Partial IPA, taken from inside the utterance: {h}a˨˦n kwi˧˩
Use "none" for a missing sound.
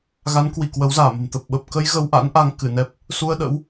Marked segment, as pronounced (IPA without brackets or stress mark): ɣ